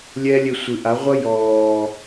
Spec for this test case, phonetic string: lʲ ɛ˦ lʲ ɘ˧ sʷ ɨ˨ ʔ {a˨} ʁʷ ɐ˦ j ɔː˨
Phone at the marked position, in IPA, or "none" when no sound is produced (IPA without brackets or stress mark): a˨˦